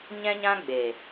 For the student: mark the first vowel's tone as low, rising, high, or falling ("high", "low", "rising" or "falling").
high